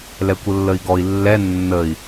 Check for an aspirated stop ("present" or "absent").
absent